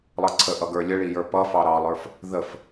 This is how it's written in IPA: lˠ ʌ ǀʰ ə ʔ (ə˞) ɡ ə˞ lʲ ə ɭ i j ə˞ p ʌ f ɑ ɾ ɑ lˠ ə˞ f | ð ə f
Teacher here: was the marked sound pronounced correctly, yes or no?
no